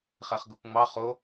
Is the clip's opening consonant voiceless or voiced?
voiceless